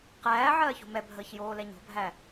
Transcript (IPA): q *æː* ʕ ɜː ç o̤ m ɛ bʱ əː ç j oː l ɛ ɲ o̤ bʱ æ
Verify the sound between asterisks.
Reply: correct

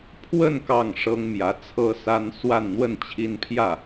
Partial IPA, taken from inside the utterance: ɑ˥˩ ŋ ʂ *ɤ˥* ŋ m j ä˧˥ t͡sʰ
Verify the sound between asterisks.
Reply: correct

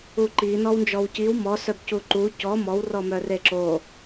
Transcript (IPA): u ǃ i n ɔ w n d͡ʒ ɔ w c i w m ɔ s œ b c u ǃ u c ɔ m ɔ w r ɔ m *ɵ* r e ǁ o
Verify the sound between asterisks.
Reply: incorrect: œ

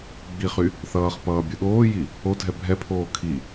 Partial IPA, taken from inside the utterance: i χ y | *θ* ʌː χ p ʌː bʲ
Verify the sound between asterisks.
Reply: correct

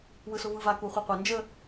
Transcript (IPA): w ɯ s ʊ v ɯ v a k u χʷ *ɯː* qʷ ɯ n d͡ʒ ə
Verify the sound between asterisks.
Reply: incorrect: ɯ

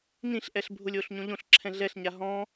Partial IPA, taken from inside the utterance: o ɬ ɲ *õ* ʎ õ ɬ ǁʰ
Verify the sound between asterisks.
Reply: correct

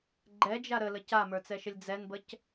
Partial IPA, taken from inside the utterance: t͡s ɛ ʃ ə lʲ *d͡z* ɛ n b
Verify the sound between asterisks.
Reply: correct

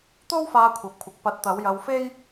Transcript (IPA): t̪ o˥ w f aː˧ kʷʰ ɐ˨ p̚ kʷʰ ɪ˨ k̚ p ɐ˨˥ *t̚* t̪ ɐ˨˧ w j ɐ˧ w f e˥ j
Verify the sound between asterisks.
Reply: correct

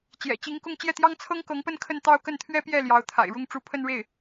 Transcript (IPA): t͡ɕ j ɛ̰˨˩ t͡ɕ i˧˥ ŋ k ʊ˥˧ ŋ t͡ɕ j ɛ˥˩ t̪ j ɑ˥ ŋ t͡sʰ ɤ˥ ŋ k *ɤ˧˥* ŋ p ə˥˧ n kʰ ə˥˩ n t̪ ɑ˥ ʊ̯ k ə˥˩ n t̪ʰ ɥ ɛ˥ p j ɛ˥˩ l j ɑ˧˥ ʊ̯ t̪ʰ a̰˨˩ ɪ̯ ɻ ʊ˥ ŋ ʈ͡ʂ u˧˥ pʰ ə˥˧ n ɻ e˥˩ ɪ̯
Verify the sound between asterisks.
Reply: correct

